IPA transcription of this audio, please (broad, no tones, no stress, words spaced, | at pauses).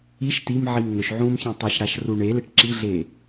iʃ timʕim ŋɵʃʕũːmçẽ tˤɨʃɽaʃru ɳeleʈ ǁiɮe